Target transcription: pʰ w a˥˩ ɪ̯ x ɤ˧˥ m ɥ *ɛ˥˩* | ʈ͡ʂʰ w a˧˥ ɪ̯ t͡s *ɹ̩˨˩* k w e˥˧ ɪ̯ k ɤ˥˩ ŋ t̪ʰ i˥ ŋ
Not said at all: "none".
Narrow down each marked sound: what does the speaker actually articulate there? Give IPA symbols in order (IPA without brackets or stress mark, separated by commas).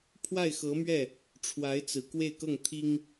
ɛ˥˩, ɹ̩˨˩